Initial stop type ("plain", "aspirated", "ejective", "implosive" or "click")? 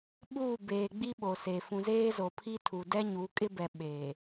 implosive